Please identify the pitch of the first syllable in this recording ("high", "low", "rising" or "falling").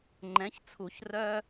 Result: rising